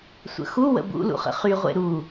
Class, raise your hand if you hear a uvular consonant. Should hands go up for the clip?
yes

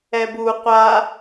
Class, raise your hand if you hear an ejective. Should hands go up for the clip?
no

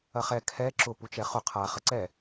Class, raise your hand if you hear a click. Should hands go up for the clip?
yes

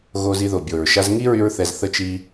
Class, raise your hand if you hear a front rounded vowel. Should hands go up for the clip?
yes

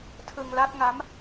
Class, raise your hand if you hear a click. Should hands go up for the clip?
no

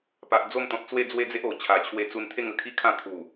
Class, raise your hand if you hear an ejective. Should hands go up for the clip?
no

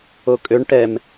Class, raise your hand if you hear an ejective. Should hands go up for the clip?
yes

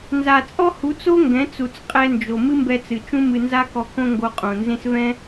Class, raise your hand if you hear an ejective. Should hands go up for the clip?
yes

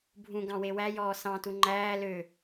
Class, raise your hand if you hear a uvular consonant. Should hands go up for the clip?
no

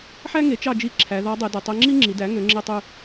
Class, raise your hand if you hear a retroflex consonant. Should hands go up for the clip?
no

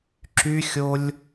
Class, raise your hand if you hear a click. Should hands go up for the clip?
yes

